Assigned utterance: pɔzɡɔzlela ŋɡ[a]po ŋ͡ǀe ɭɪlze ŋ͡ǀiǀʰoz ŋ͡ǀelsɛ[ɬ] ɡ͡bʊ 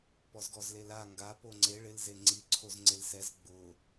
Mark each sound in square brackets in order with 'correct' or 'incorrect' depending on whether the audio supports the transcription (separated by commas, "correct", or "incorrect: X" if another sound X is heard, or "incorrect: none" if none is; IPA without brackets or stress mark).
correct, incorrect: z